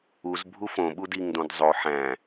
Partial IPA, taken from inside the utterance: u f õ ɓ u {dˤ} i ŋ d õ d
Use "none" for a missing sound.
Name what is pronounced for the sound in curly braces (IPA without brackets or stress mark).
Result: d